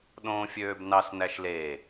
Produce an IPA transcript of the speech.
ɗ õː fʲ øː b n ɑ s n æ ʃ l e

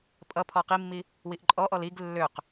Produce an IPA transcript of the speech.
pʼ ʌ pʰ ɔ q i mː i | w i ʔ ǃʼ ɔ ʔ ɔ l i ɡ lː ø q

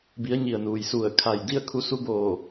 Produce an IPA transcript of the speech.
b i˩˧ ə̯ ɲ i˩ ə̯ n uː˩ j s u˧˩ ə̯ kʰ a˧˩ j d i˥˨ ə̯ kʰ u˧ s u˧˥ b oː˧˩

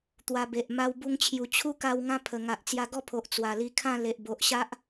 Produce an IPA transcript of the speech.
t̪ w a˧ b e˨ ʔ m a˦ w b u˧ ŋ t͡ɕʰ j u˨˩ t͡ɕʰ u˦ k a˧ w ŋ ã˦ pʰ ə˨˩ ŋ a˨ ʔ t͡s j a˧ ɡ ɔ˥˧ pʰ o˨ ʔ t͡s w a˨˩ l i˧ kʰ ã˥˧ l e˨ ʔ b o˨ ʔ ɕ a˦ ʔ

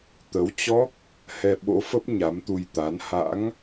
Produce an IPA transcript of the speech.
t̪ ə˨˦ w t͡ɕ ɔ˦˥ k̚ | h ɛ˧ ɓ o̰˧˥ f ə˦˥ p̚ ɲ a˨˦ m t̪ u˧ j t̪ a˨˦ n h a̰˧˥ ŋ

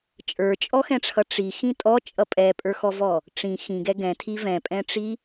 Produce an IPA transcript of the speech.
t͡ʃʼ ə˞ t͡ʃʼ ɔ x ɛ̃ ʈ͡ʂʰ ʌ ʈ͡ʂ i x ĩ tʼ ɔ t͡ʃʼ ʌ pʼ ɛ pʼ ə˞ x ɔ v ɔ | ʈ͡ʂ ĩ x ĩ ɡ ɛ ɡ ɛ̃ tʰ i v ɛ̃ pʼ ɛ̃ ʈ͡ʂ i

